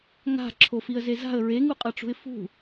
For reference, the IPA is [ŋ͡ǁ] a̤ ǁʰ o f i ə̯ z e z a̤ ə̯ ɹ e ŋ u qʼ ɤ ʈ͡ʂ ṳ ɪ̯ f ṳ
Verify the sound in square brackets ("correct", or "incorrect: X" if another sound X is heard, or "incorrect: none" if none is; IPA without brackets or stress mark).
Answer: incorrect: ŋ